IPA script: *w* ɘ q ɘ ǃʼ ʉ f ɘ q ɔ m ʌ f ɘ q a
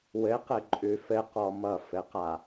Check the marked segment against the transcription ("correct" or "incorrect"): correct